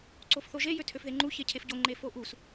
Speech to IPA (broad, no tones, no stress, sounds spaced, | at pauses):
ǀ o f θ o ʒ e j ø tʰ ø f ð e ŋ͡ǃ u ç e cʰ e f ɟ o ŋ͡ǃ e f o ʔ u s